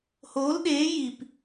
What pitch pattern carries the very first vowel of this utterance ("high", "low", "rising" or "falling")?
rising